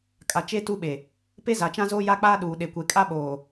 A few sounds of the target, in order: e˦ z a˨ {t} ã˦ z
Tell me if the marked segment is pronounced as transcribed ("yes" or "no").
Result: no